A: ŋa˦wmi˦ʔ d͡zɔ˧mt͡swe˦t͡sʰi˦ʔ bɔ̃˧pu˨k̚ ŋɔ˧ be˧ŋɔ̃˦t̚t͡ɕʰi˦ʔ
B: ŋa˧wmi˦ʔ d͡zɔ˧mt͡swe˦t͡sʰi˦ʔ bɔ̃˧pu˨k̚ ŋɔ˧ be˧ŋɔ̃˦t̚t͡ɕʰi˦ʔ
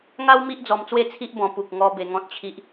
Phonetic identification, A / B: A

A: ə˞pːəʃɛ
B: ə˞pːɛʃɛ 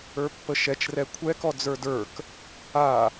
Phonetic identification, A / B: A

